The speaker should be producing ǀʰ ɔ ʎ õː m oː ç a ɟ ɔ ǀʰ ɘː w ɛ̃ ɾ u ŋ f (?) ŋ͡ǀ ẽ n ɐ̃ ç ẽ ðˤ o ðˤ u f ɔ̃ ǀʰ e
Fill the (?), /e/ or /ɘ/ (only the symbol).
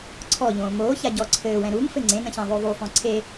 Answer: ɘ